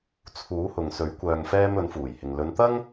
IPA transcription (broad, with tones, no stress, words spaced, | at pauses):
t͡sʰuː˨˥hʊ˨ŋsɵ˨˥ɥ kʷœː˧ŋfɛː˥m ɵ˨˥nfuː˨˩jhɪ˨ŋ lɵ˨˧nt̪ɐ˥ŋ